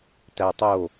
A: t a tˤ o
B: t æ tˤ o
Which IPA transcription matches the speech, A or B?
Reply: B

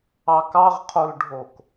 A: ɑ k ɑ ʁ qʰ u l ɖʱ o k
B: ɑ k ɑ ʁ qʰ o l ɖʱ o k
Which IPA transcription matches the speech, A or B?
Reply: B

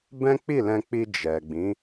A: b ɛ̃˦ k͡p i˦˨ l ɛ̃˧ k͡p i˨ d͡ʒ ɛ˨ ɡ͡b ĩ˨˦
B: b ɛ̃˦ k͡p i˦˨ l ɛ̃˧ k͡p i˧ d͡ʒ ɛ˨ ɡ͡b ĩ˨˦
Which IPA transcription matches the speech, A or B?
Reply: B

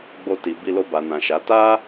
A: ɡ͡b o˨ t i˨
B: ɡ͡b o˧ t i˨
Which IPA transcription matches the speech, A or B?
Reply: B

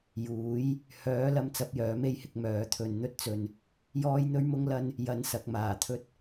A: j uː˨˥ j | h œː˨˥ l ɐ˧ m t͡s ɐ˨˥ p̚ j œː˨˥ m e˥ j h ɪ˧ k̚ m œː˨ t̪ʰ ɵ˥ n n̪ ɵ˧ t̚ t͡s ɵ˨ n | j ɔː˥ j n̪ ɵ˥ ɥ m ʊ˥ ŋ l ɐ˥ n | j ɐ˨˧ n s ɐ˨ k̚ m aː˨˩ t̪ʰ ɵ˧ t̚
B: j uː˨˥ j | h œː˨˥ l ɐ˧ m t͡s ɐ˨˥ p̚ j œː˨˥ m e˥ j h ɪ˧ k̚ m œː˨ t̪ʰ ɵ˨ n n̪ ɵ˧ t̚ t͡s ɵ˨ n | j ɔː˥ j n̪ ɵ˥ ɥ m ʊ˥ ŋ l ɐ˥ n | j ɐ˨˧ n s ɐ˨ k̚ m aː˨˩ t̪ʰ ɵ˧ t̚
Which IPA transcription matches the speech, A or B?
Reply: B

